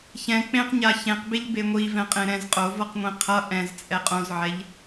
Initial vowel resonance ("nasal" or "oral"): nasal